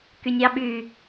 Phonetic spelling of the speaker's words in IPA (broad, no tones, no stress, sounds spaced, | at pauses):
k y nʲ ɑ ɓ y